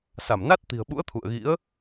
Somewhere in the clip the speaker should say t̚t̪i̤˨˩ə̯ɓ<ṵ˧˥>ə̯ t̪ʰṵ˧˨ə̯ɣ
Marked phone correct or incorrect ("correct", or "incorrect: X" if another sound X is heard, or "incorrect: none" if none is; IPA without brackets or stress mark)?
correct